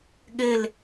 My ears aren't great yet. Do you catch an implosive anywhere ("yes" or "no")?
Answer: yes